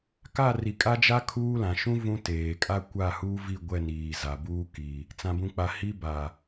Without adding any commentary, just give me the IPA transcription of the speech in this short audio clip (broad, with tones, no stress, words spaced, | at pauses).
ka˦˨ ri˨kʼa˦d͡ʒa˦ kʰuː˦lã˨ ʃũ˦ vũ˦ teː˨kʼa˦ kʷa˦˨huː˦vi˦˨ ɡʷɛ˦˨niː˨ za˨buː˦ ki˨ | t͡sã˨bũ˨k͡pa˨ hi˦ ba˨